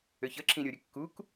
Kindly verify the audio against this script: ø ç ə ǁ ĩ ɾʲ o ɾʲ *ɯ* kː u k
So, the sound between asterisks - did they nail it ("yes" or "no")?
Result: no